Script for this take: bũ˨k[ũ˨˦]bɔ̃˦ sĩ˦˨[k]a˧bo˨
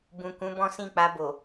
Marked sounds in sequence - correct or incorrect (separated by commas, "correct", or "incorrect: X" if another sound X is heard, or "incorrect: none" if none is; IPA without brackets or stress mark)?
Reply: correct, incorrect: k͡p